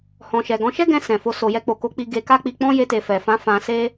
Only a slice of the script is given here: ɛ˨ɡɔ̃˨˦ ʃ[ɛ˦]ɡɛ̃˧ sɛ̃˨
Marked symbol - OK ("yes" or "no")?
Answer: yes